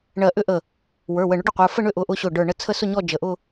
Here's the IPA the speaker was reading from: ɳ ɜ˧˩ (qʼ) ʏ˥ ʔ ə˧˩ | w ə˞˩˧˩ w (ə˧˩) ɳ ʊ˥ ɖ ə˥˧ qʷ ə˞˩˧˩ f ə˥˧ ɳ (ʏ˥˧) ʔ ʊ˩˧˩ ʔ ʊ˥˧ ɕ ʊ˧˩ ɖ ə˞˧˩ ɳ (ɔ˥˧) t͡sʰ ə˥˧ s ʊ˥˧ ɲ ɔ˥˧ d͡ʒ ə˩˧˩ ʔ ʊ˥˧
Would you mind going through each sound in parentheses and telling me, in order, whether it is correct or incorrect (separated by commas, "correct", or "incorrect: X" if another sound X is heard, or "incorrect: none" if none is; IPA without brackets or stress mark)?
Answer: incorrect: ʔ, correct, correct, incorrect: ə˥˧